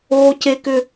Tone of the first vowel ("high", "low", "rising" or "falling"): high